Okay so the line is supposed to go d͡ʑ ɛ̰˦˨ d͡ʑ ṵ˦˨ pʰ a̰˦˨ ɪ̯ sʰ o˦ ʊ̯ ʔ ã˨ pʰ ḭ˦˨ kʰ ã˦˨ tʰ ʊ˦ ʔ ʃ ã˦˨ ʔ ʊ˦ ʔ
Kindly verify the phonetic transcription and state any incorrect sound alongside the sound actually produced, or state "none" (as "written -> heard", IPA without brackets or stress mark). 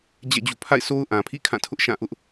none